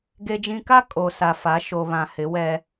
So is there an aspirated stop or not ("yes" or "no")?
no